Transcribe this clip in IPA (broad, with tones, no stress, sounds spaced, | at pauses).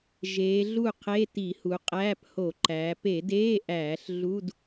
ʒ eː˩˧ ɮ u˥˩ qʰ e˧˥˧ t i˧˩˧ h u˩˧ qʼ æː˧˥˧ p h o˧˩˧ ǃ æː˩˧ p e˧˩˧ d eː˧˥˧ ʔ æː˧˩˧ ɬ ɮ u˧˥˧ d